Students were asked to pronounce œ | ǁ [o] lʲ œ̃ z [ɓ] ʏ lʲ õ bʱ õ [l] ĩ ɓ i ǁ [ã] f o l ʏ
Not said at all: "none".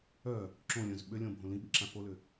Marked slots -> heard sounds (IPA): õ, ɓ, l, ã

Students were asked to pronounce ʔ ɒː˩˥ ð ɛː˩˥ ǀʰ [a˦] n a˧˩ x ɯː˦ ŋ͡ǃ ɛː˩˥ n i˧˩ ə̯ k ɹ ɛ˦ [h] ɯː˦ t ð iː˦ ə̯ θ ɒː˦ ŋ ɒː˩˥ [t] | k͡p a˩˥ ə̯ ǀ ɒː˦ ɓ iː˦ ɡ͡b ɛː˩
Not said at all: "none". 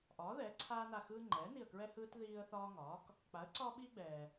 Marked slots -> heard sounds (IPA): aː˦, h, k

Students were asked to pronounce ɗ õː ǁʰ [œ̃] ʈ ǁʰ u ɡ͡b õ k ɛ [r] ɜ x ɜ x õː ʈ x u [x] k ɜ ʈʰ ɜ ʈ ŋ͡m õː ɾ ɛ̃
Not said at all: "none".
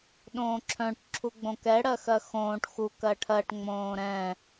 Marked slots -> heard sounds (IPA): œ̃, ɽ, none

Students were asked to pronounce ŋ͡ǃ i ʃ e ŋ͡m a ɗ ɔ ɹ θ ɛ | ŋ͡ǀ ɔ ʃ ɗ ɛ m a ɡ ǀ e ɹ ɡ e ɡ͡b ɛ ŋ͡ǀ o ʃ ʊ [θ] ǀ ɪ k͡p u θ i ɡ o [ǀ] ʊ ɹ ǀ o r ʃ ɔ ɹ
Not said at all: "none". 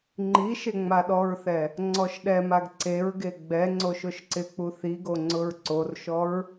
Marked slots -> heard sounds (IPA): ʃ, ŋ͡ǀ

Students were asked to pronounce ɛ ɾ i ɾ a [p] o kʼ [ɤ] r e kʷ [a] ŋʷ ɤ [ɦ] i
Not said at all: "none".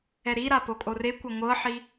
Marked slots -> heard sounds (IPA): p, o, a, ħ

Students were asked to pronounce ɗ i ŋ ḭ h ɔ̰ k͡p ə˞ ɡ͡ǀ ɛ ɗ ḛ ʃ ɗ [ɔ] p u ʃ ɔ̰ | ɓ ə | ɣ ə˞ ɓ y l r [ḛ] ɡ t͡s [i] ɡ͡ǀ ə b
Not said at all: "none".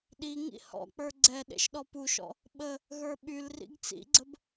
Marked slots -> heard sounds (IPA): ɔ, ḭ, ḭ

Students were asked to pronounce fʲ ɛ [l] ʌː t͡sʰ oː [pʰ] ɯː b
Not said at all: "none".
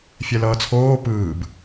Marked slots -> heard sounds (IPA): l, p

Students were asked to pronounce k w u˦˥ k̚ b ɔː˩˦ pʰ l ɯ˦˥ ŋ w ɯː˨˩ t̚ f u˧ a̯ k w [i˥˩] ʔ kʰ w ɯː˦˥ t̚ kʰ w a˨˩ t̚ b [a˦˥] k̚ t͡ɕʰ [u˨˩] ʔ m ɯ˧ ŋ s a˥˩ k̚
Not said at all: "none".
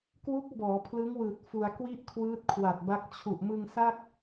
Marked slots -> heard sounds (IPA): i˥˩, a˦˥, u˨˩

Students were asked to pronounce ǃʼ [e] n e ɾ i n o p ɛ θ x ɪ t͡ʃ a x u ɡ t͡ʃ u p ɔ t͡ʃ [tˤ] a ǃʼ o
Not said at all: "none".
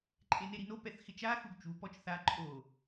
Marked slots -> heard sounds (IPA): e, θ

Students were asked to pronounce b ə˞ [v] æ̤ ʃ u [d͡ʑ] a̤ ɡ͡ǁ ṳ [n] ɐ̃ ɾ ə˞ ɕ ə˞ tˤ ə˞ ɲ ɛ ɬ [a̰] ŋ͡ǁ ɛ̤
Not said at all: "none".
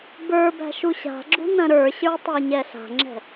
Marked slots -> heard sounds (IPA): b, ɕ, n, a̤

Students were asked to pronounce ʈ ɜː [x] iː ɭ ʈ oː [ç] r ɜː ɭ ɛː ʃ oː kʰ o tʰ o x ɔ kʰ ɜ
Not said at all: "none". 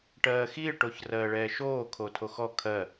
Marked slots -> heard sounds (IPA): x, ç

